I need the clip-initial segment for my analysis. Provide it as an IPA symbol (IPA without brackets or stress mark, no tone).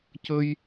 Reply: c